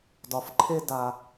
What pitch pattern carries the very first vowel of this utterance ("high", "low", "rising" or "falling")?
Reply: low